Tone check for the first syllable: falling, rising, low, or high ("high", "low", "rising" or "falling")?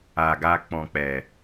low